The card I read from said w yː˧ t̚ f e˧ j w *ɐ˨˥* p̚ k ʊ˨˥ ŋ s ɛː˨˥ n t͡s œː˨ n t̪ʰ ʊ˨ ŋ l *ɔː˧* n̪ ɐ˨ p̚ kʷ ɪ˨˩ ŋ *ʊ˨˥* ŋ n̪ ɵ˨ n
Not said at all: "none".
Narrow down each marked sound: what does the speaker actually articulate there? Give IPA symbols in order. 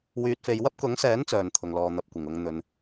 ɐ˥, ɔː˨, ʊ˨

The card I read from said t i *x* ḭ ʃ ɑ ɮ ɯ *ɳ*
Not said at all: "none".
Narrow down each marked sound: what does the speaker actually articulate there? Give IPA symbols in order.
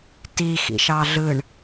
x, ɳ

